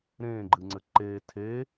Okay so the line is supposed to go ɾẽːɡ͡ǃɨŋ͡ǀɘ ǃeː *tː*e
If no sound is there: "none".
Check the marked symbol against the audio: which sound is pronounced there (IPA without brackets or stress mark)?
tʰ